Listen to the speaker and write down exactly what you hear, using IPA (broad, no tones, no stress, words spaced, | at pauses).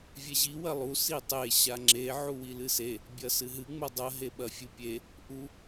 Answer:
vʲeʑi wɐlˠu sitˤe ɕaŋ͡ǁe ʕuwilɨse | bʲɐsɨɦɨ ŋ͡modˤɐ ɦeɓɐfʲɨpʲe | ʔu